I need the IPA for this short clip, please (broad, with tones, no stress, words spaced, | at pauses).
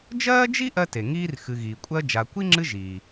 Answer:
d͡ʒɜː˥d͡ʒi˥ ʔɜ˦te˩ŋiː˦r xɨ˨ɣiː˩kʷʼɜ˦ d͡ʒa˨kʷi˥ŋ͡ǁɨ˦ ʒiː˩